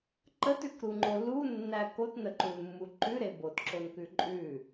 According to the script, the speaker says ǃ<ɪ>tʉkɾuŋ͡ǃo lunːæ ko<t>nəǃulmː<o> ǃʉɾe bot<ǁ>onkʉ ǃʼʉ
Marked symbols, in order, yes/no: no, yes, no, yes

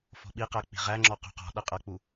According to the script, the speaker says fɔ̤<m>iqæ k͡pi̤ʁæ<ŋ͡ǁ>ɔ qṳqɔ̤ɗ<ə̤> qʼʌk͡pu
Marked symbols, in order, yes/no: no, yes, no

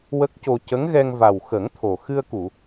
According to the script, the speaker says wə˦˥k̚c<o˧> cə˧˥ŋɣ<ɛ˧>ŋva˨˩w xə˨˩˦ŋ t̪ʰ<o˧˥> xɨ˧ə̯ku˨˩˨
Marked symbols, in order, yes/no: yes, yes, no

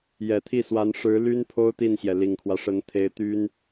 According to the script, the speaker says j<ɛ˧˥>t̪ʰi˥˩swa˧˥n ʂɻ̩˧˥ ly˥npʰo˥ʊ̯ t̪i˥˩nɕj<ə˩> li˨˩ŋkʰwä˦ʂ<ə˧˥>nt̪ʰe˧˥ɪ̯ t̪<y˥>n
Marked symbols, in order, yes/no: no, no, yes, yes

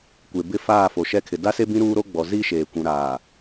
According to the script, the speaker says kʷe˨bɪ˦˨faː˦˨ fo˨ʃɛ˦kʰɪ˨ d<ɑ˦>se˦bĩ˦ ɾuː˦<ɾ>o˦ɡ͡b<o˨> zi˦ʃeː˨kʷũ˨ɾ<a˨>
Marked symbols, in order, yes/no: no, yes, no, no

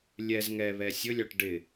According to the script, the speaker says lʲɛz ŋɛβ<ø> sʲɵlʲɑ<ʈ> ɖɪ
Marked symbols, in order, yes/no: no, yes

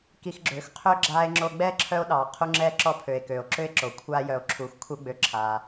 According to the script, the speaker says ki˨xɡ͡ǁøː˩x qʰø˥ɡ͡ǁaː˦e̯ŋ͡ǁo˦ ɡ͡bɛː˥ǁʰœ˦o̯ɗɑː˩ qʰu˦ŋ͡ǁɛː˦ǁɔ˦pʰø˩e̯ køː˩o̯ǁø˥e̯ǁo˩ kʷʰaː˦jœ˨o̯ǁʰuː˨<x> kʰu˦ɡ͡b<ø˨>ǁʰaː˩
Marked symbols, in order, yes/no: yes, yes

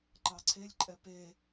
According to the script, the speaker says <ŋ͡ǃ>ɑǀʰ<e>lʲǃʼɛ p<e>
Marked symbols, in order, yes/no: no, yes, yes

